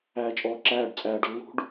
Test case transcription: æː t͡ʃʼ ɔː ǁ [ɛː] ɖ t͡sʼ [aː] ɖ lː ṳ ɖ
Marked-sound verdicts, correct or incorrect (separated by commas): incorrect, incorrect